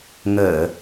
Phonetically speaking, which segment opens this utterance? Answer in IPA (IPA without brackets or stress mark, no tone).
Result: ŋ